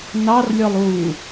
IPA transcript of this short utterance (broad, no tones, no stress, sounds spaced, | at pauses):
n ɑ r lʲ ɔ lˠ u